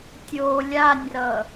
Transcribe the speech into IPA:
tʲo lʲanʲrʌ

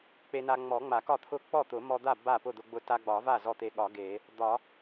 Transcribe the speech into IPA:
k͡pe˧na˧ŋ͡mɔ˨˩˦ ŋ͡ma˨˩˦kɒ˥˩t̪ʰʊ˥˩ k͡pɔ˥˩t̪ʊ˨˩˦mɔ˧d̪a˥˩ ba˥˩pʊ˥˩d̪ʊ˧ɡ͡bʊ˧ ta˧ɡ͡bɒ˨˩˦va˥˩ zɔ˥˩t̪e˧ɠɒ˨˩˦ ɡe˨˩˦ | d̪ɒ˨˩˦

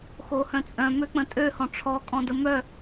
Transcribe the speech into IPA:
xohœ̃t͡sʼœ̃ møk͡pə̃tʼø hɔ̃ʈ͡ʂʰɔ kʼɔ̃dəmœ

